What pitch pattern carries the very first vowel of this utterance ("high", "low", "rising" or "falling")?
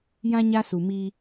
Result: high